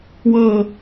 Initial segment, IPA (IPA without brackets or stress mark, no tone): w